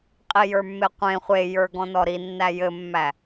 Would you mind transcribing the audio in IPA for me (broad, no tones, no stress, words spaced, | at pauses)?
qʼijə˞mːeqʷẽ χʷejə˞ ɡɔ̃nɔɾinːæ jɘmːæ